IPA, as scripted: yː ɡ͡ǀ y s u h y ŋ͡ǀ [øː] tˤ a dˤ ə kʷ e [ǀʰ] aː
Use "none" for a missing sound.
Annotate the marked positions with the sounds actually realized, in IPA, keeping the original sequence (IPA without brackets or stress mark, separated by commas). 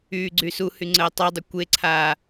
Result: əː, ǀʰ